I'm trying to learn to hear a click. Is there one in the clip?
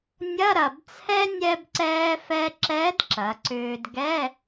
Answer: yes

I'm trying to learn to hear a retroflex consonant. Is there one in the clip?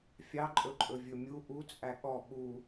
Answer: no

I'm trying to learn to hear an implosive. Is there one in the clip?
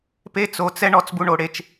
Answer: no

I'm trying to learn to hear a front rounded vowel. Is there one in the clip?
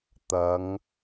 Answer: no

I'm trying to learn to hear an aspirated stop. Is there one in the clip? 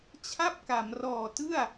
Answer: yes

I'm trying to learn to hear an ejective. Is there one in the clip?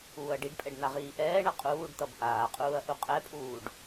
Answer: yes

